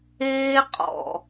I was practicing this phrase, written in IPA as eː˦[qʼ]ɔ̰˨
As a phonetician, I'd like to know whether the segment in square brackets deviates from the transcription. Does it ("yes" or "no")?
no